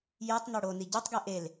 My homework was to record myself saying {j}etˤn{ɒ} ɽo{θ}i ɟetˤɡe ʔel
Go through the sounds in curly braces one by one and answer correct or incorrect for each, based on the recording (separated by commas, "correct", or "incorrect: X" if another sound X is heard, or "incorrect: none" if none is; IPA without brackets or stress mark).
correct, correct, incorrect: n